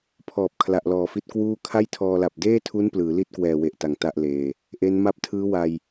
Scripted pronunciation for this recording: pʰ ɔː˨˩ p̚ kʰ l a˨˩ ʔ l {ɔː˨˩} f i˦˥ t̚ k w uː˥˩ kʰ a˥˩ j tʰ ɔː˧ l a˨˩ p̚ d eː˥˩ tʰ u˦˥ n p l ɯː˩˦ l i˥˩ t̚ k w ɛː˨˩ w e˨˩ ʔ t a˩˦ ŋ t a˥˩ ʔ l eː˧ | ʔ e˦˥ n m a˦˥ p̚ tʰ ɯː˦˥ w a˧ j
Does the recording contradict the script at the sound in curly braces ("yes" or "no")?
no